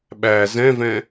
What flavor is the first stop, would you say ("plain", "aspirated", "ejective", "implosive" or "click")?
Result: implosive